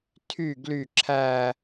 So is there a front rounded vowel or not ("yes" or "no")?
yes